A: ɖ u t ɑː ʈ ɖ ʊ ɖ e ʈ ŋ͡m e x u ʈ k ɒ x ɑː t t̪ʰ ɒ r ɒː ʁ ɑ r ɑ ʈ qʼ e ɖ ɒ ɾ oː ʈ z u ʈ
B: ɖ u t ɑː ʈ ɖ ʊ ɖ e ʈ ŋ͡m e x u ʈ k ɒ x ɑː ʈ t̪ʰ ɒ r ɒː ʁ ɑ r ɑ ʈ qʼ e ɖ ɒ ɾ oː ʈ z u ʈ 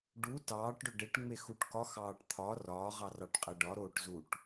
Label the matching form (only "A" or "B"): B